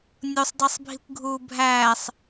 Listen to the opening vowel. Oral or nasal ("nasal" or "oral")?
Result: oral